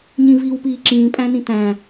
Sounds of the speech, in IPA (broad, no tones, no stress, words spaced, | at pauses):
ɲĩviːwpiːǁĩː pʼæ̃nĩtæ̃